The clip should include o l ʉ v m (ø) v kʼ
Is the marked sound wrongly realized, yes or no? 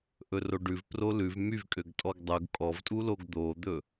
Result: yes